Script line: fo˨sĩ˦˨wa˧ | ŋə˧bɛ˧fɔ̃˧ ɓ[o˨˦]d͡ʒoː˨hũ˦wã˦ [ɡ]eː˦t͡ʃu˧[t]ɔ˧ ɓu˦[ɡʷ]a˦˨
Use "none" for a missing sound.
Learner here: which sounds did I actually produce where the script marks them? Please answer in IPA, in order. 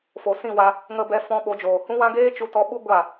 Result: o˨˦, ɡ, t, ɡʷ

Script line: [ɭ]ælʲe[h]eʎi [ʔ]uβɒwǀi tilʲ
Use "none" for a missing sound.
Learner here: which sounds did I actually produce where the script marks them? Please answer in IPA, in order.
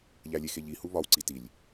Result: ʎ, x, h

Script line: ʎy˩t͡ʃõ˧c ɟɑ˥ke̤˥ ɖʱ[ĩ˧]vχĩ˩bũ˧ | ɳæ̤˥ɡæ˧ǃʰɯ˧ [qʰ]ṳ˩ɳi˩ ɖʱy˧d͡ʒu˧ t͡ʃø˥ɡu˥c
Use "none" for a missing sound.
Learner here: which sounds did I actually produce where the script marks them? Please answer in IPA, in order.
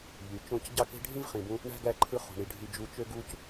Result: ĩ˥, χ

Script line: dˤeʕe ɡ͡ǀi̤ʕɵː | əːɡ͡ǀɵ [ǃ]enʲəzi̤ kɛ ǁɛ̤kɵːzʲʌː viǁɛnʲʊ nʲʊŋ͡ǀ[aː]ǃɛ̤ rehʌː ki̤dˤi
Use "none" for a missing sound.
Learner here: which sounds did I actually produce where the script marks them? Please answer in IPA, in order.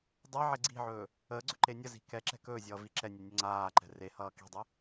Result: ǃ, aː

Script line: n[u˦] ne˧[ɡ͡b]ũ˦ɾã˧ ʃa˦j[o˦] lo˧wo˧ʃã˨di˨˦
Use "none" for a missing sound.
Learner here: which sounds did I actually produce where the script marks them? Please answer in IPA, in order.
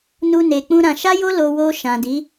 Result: u˧, k͡p, o˦

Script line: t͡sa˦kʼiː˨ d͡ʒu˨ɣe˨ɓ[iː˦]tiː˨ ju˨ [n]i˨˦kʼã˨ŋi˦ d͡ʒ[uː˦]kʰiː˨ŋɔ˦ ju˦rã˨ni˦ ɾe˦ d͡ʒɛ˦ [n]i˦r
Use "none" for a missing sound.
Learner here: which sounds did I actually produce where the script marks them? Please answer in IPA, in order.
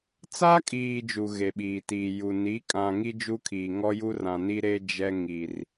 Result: iː˨, n, u˦, ŋ

